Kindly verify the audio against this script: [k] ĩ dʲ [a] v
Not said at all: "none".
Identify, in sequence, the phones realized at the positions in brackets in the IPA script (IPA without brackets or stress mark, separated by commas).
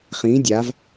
χ, a